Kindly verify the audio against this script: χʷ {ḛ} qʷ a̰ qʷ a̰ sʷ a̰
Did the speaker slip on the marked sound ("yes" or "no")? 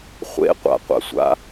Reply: no